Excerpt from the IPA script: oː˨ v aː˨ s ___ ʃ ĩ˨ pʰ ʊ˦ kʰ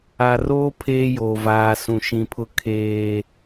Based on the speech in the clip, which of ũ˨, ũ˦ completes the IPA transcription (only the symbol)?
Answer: ũ˨